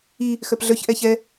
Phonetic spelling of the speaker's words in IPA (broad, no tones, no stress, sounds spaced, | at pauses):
i | x œ p ɮ œ ç ʔ ɛ ç ɛ